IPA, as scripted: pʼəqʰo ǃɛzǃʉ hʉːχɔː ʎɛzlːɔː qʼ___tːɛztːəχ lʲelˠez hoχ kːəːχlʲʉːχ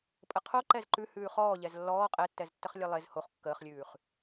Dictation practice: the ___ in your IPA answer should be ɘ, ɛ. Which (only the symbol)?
ɛ